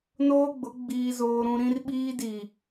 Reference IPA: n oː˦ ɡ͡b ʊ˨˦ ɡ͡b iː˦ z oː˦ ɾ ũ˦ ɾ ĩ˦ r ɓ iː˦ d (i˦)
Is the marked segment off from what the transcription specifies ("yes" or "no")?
yes